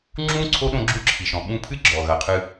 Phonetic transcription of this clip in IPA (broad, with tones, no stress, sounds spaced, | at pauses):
ŋ͡ǁ ũ˥ ǀʰ o˥ ɗ õ˦ ɡ͡ǁ u˦ ǁʰ i˩ ʃ ɔ̃˩ ɓ ũ˦ pʰ ɨ˥ ɡ͡ǁ ɔ˩ ɣ ɐ˩ qʰ ɨ˨